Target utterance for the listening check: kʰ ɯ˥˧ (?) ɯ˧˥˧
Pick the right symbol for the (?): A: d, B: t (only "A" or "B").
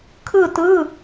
B